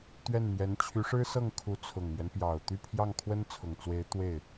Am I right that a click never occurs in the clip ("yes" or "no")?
yes